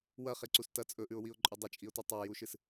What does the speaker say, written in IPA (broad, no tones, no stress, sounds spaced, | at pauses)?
w ɐ χ e ǀ u s t ɐ t͡sʼ ɵ ʔ ʉ ʊ̯ w i ʊ̯ ǃʼ ʉ dˤ ɐ t͡ʃʼ i ʊ̯ t u tˤ a j u ʃ ɨ s